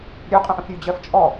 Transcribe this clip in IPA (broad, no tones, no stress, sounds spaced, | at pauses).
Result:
ɾʲ ø qʼ ə̃ ʔ ə̃ f ɾʲ ʉ d͡ʑ ɜ f t͡ʃʼ ɔ